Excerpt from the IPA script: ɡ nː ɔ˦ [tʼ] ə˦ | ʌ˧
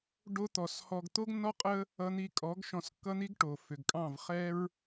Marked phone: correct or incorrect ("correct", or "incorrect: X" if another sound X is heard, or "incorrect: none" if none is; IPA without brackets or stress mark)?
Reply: incorrect: qʼ